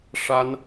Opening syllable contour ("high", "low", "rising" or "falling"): high